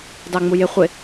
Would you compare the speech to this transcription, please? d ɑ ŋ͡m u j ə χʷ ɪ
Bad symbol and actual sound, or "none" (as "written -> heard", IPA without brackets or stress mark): ə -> ɪ